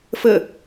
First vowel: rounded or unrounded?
unrounded